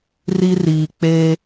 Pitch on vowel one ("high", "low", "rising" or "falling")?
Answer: high